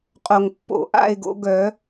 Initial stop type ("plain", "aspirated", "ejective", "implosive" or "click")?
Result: ejective